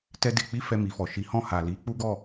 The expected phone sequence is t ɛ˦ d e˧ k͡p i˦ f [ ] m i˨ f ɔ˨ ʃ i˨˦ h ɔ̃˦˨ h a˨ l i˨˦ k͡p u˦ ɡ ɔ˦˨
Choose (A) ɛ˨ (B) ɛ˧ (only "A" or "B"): B